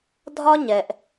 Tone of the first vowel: high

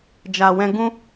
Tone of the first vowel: low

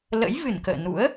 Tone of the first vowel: rising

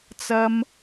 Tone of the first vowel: low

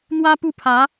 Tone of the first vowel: high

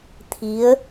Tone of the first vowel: rising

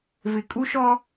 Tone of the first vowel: low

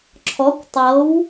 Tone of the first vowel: rising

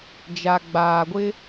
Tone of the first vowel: low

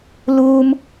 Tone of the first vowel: high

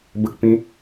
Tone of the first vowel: low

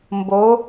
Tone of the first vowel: rising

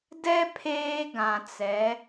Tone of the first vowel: high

